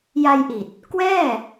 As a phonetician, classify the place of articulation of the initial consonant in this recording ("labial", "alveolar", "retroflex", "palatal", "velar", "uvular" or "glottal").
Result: palatal